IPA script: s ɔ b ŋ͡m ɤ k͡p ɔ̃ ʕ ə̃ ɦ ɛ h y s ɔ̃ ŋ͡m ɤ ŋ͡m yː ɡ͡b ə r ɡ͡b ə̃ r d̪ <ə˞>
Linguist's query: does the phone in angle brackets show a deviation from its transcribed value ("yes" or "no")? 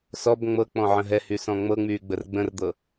yes